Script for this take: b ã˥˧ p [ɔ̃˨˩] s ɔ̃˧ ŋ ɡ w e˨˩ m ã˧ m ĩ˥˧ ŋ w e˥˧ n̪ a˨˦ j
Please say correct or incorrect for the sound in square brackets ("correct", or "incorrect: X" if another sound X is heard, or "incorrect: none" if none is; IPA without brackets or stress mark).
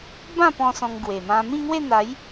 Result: incorrect: ɔ̃˧